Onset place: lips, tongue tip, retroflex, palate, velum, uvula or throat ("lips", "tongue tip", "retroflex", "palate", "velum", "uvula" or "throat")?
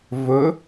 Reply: lips